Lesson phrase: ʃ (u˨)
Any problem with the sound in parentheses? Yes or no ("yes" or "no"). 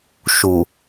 no